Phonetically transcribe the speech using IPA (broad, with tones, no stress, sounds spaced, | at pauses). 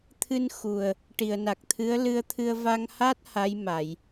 t̪ʰ ɨ˧ n x u˨˩ ə̯ | ʈ i˨˩˨ ə̯ n a˨˩ k̚ t̪ʰ ɨ˧˥ ə̯ l ɨ˧ ə̯ t̪ʰ ɨ˧ ə̯ v a˧ ŋ h a˦˥ t̚ h a˧˥ j m a˨˩˨ j